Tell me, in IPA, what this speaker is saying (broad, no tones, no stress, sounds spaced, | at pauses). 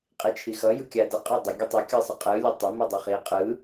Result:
qʼ i t͡ʃʰ i x ʌ j ɯ kʲ a d ə qʼ a dˤ ə ɡʲ ə tˤ ʌ kʲ ɯ sˤ ə qʼ ɯ lʲ ə tˤ ə m i dˤ ɯ χ i qʼ ɯ